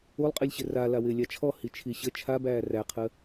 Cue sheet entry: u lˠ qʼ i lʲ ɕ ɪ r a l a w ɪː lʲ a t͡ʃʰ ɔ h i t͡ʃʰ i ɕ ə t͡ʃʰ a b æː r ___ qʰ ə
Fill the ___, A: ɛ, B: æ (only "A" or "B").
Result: B